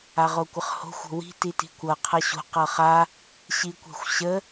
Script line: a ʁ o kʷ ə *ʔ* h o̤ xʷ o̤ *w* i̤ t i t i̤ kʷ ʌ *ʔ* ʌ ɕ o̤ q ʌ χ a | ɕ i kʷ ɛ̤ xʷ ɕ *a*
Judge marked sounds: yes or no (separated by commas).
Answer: no, yes, no, no